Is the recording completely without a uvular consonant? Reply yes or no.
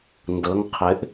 no